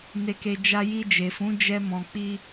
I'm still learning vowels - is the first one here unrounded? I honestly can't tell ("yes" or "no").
yes